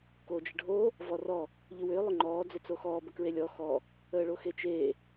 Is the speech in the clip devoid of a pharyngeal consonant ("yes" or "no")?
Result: yes